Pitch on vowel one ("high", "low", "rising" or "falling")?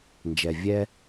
low